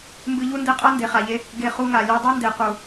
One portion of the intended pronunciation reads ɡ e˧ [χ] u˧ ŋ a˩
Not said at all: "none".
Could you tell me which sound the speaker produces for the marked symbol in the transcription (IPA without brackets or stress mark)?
χ